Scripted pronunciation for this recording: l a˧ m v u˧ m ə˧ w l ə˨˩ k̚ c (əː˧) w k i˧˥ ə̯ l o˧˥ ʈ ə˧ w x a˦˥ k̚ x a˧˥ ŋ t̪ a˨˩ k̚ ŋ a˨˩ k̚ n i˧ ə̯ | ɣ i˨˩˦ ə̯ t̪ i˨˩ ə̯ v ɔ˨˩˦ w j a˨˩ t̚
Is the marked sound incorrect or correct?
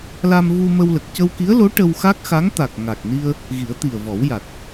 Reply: incorrect